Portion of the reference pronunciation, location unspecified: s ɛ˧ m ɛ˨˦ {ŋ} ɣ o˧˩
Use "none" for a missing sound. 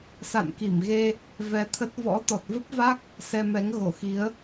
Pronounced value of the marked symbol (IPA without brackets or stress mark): ŋ